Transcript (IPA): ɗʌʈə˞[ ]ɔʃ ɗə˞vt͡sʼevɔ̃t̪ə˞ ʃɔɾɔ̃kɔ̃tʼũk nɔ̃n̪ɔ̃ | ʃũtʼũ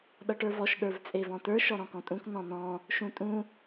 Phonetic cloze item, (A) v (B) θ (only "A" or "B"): A